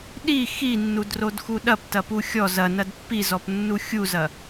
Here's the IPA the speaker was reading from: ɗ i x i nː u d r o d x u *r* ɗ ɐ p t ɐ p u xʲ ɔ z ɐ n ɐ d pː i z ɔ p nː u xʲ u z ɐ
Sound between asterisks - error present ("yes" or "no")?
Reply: yes